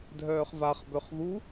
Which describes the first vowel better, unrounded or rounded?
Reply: rounded